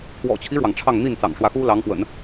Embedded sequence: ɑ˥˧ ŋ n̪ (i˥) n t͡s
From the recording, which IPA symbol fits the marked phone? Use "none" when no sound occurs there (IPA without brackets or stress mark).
i˥˩